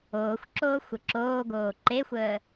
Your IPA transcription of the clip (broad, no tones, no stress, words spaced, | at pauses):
oːxʷǁoːxʷə ǁoːɡoː ǃexʷəː